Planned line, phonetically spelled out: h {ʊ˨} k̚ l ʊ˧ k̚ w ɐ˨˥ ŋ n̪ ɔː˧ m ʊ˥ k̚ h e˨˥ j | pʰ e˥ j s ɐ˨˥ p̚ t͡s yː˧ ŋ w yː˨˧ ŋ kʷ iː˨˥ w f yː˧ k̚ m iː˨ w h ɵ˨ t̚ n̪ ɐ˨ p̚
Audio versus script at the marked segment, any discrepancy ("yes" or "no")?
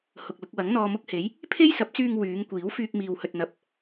no